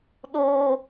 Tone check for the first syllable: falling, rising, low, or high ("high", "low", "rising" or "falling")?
high